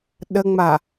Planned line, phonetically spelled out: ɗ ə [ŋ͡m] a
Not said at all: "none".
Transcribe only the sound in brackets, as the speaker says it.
ŋ͡m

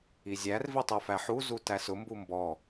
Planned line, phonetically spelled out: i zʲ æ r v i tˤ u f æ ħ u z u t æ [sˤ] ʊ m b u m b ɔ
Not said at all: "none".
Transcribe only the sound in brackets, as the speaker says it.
s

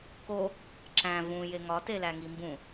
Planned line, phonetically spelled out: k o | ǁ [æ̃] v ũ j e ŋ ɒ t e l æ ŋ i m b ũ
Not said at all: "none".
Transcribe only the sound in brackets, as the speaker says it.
æ̃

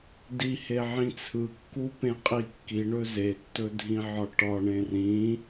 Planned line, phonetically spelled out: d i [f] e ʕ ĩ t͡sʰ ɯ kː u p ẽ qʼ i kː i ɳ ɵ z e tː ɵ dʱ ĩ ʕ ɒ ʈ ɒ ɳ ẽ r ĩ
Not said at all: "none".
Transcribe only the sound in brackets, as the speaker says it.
h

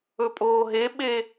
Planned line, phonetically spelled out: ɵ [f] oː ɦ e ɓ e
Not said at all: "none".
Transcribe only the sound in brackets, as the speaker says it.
pʼ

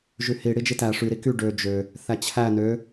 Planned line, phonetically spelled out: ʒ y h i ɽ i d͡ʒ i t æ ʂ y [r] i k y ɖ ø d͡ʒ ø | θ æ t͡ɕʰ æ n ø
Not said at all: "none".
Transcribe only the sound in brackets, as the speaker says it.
ɾ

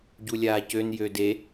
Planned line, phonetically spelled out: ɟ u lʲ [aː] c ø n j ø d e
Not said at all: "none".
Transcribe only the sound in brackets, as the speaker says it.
aː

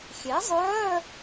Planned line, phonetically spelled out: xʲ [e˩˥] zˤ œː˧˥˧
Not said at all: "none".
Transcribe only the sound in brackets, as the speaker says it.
e˩˥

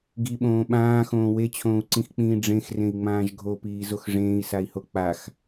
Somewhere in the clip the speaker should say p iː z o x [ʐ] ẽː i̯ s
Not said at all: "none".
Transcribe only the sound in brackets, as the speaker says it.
ʐ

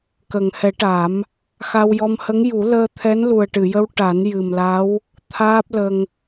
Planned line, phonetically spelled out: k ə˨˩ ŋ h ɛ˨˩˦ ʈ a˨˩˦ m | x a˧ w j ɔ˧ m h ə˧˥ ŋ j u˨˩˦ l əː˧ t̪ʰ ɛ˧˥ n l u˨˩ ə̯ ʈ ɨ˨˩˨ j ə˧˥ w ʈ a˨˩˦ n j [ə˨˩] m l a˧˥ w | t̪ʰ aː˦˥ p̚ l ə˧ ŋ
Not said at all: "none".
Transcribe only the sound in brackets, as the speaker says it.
ɨ˨˩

